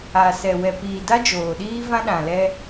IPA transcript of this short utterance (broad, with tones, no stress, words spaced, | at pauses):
a˨sɛ˨ wɛ˨ piː˨da˦d͡ʒoː˨ɗiː˦ vã˦ɗã˨ lɛ˦